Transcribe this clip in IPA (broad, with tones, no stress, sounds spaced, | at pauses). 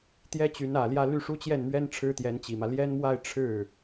t̪ j ɛ˥ t͡ɕ y˧˥ n ä˨˩ l j ä˥˧ l y˥˩ ʂ u˥ t͡ɕ j ɛ˥˩ n m ɥ ɛ˥ n ʈ͡ʂʰ ɻ̩˥ t̪ j ɛ˧˥ n t͡ɕ i˨˩ m ä˦ l j ɛ˥ n m w a˥˧ ɪ̯ ʈ͡ʂʰ ɻ̩˥˩